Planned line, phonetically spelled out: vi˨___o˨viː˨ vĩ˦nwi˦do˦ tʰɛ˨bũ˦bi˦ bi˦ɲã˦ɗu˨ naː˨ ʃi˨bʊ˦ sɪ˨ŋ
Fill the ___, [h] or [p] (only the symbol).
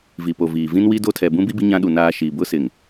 p